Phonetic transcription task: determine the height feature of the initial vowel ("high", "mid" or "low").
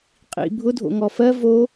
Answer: high